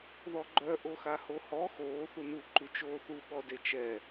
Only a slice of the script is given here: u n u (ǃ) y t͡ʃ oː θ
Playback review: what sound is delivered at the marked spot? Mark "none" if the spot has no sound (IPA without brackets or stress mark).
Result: ǃ